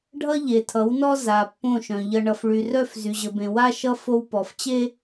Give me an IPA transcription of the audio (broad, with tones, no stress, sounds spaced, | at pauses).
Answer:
ɖʱ ʌ˦ ʎ e˨ tʰ ʌ˨˦ w n ɔ˦ z a˨ pː õ˦˨ ʃ œ̃˨ ʎ ʌ˨ ɳ ʌ˨ f ɭ y˨ r œ˦˨ f z y˨ ʑ ə˨ b ẽ˨ w a˦ ʃ ʌ˦ f o˦ w p ɔ˨ f t͡ɕ e˦